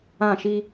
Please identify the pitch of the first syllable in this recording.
falling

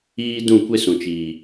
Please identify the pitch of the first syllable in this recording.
high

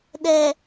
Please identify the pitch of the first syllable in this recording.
low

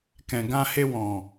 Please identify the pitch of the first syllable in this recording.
low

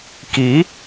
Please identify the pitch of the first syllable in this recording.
rising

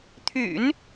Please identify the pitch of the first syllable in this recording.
low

